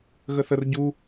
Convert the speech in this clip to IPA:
ɣ ə θ ə r ɟ u

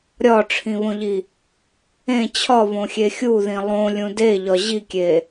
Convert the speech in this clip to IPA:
ɾʲ ɒ ʈ͡ʂʰ ĩ β õ ʎ i | ẽ t͡ɕʰ ɒ β õ xʲ e xʲ u ð ĩ lˠ õ lʲ ũ d e ʎ ɒ ʑ i kʲ e

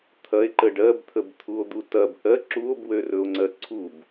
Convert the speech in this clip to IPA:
t̪ʰ ɐ e̯ ǃ ə ɖ ɜ b t̪ʰ ə b t̪ʰ u o̯ d̪ u t ɐ b ʔ ɜ ǁ u o̯ b w ø r ɵ o̯ ŋ͡ǀ ɜ ǀʰ u b

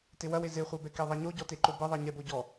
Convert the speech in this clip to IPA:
t e w ɐ w e z e χʷ ɛ b ɛ k e ðˤ ɛ ɲ o ɟ ɔ t e ǃ o b ɘ ðˤ e ɲ ɛ b o ɟ ɔ

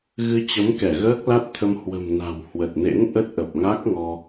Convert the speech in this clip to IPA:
ɣ ɨ˧ t͡ɕ ə˨˦ m k ɛ˧˩ ɣ əː˦˥ k̚ l a˦˥ t̚ t̪ʰ ə˧ m h w ə̤˨˩ m n a̤˨˩ w h w ə˨˩ t̚ n ḛ˧˥ n ʔ ə˦˥ t̚ ʔ ə˨˩ p̚ ŋ a˦˥ k̚ ŋ ɔ˧

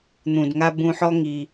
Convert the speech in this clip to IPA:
n̪ ũ˨ d ŋ a˧ b ũ˧ ħ ɔ˦ ŋ i˧

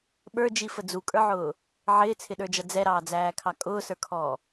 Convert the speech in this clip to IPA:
ɓ ə˞ d͡ʒ i f ə d͡z u kʼ ə˞ ʕ ʊː | ʕ ɪː t͡sʰ ɪ ɗ ə˞ d͡ʒ ʌ d͡z ɛ ɾ ɑː d͡z æː kʰ ɑ kʼ ʊː s ə˞ kʰ ɔː

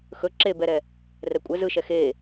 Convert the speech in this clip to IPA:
x ɵ ǁ e b ɛ ɾ ɛ | r ɛ kʷʼ ɛ z ɯ ʃ ɛ x e

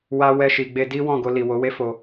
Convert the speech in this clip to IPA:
w a˧ w ɛ˧ ʃ i˨ ɡ͡b e˧ d i˦ w ɔ̃˦˨ ɡ o˧ l i˨ w o˨˦ w e˦ f o˧

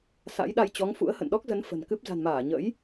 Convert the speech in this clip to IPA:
s a̰˧˥ j ɗ a˧ j t͡ɕ ɔ˨˦ ŋ f ṵ˧˥ ə̯ h ə̰˧˨ n ɗ ɔ˦˥ k̚ z ə˨˦ n f ə̤˨˩ n k ɨ˦˥ p̚ z a̤˨˩ n m aː˧˩ ɲ ə̰˧˥ j

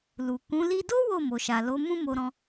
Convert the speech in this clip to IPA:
l u˨ k ũ˨˦ l i˦ d o˦ w o˦˨ m o˨ ʃ a˨ l o˨˦ m ũ˦ m o˧ ɾ ɔ̃˧

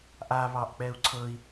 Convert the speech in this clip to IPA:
ʔ a β ɑ ʔ k͡p ɛ u̯ ǀʰ ɤ i̯

